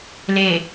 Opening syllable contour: low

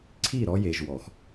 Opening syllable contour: falling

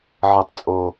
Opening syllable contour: low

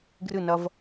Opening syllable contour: falling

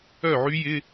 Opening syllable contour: falling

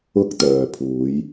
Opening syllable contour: high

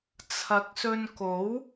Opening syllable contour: rising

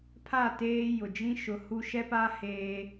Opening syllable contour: falling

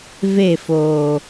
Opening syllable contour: falling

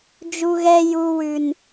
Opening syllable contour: high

